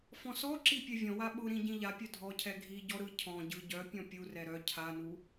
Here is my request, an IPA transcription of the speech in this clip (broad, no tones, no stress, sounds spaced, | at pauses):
f ɔ̃ s ɔ ǁ i pʲ ɛ vʲ ɔ̃ w a ɓ ʊ ɾ ĩ ɟ ĩ ʎ a pʲ œ dʱ ɔ cʰ ɛ ɡʱ i ɟ ɔ ɾ ɯ cʰ ɔ̃ ɟ ɯ ɟ œ pʲ ɔ̃ pʲ u r ɛ ɾ œ cʰ a n u